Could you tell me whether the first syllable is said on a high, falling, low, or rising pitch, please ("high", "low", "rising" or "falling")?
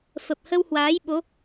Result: low